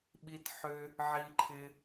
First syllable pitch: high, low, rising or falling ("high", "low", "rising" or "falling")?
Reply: high